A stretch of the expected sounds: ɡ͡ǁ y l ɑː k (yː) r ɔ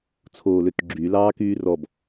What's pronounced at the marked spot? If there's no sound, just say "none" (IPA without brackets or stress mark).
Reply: yː